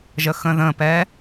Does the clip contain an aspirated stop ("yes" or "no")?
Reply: no